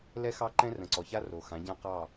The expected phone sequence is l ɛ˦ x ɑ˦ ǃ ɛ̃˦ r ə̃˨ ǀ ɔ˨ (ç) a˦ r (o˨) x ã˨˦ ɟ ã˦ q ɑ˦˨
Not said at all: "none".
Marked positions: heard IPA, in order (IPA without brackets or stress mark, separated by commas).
ç, o˨